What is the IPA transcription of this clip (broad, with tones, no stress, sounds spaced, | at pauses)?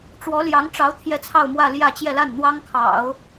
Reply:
ʈ͡ʂ w ɔ˧˥ l j ɑ˧˥ ŋ ʈ͡ʂ ɑ˧˥ ʊ̯ t̪ʰ j ɛ˥˧ t͡sʰ ɑ˥˧ ʊ̯ m w ä˥˧ l j ä˥˧ t͡ɕ j ɛ˥˧ l a˥˩ n n̪ w ɑ˥ ŋ kʰ ɑ̰˨˩˦ ʊ̯